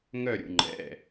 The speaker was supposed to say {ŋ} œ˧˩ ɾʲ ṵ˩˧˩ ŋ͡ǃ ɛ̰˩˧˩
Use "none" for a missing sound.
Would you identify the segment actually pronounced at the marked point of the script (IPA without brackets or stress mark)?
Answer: ŋ